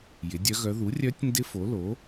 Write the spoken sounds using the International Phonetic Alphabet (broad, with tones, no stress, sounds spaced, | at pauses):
j ɪ˩˥ dʲ œ˧˥ ɣ œ˧˥ ð u˩˥ rʲ œ˧˥ tʲ n d ɪ˧˥ f o˩˥ l o˩˥